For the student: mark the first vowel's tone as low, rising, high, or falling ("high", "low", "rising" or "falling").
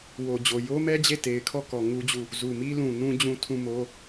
low